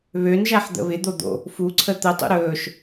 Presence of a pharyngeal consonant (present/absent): present